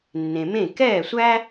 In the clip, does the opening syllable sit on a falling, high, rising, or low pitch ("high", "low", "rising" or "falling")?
low